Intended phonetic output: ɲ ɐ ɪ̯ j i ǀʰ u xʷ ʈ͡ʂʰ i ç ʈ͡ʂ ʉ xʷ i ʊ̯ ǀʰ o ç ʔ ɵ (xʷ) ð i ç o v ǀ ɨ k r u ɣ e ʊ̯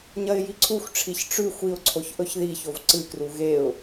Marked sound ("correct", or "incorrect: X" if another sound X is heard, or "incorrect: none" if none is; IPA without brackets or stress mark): incorrect: ç